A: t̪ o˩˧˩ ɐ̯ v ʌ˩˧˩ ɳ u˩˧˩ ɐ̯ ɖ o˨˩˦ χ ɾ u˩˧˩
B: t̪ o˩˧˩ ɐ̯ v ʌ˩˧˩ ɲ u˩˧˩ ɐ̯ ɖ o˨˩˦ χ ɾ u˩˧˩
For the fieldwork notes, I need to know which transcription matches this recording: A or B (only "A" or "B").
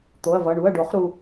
A